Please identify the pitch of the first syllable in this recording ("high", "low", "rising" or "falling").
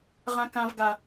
high